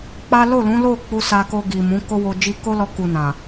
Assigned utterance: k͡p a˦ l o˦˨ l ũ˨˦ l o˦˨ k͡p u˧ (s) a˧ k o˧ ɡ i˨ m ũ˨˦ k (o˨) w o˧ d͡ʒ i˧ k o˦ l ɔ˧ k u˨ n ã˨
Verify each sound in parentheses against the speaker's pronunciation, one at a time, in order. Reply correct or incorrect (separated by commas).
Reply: correct, incorrect